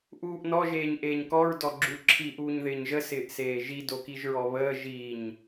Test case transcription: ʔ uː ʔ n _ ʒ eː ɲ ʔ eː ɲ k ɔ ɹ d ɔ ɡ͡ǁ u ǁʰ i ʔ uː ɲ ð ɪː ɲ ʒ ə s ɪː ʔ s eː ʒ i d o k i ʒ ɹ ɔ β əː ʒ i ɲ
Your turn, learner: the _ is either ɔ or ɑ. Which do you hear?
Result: ɔ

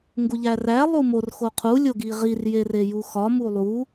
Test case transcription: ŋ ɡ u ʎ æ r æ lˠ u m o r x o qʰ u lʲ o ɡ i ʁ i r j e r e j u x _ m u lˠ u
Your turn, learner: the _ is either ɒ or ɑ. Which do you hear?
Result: ɒ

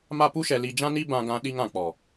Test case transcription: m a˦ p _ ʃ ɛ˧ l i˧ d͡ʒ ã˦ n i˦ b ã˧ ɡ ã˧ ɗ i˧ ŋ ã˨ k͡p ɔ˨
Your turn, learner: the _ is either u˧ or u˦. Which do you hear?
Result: u˦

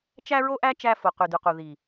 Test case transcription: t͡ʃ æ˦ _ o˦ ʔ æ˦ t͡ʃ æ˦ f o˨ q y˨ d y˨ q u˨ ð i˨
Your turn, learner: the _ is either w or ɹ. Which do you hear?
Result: ɹ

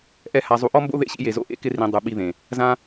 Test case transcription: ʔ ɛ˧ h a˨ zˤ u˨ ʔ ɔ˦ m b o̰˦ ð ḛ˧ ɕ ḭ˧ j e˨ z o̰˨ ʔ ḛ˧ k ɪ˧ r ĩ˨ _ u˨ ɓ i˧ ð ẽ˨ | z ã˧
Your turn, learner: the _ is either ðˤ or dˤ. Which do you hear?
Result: dˤ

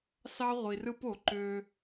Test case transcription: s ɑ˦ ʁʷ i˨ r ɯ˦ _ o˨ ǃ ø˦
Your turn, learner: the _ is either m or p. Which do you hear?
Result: p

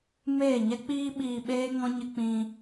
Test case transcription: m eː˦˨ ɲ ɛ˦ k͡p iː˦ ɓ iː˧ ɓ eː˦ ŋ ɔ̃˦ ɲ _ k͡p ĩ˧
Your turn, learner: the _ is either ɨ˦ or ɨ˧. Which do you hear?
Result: ɨ˧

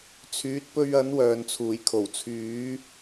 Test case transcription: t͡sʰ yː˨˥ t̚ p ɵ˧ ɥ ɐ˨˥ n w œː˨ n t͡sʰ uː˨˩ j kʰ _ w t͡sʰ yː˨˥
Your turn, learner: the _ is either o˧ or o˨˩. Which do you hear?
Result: o˨˩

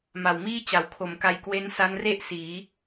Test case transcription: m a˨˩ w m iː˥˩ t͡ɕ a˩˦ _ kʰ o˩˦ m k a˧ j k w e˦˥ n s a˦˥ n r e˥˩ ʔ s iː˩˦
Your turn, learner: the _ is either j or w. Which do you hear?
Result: w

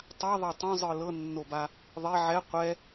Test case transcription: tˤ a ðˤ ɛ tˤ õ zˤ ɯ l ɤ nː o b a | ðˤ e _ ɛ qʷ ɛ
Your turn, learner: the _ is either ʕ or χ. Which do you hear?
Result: ʕ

